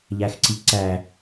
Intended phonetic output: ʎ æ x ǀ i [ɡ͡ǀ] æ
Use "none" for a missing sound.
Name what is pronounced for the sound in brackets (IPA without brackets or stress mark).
ǀ